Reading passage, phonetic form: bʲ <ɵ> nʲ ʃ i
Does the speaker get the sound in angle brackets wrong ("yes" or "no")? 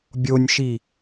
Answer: yes